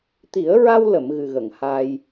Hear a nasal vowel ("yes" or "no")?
no